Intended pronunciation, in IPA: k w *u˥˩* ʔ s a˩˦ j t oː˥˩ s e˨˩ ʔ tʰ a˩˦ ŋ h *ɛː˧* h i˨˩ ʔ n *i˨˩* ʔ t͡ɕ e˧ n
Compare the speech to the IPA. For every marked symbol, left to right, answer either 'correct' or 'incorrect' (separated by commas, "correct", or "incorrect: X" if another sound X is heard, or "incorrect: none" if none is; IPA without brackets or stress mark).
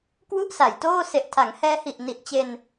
correct, correct, correct